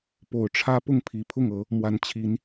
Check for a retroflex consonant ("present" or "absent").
present